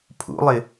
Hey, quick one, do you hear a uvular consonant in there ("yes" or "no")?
no